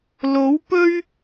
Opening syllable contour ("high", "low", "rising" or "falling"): rising